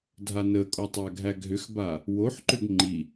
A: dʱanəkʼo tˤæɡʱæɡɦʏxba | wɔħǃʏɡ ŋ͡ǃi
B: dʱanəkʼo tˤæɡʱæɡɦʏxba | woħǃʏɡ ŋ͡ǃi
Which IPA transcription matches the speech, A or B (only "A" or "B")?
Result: B